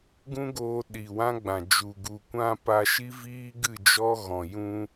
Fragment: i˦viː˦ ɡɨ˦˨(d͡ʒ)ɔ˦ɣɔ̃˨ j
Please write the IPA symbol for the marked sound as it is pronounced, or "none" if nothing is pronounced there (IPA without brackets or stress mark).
d͡ʒ